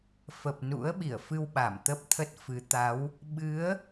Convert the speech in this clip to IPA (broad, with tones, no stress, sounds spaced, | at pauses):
f ə˨˩ p̚ n ṵ˧˥ ə̯ ɓ i˧˩ ə̯ f ɨ˧ w ɓ a˧˩ m t̪ ə˦˥ p̚ t̪ʰ ə˦˥ t̚ f ɨ˨˦ t̪ a˨˦ w | ɓ ɨ˨˦ ə̯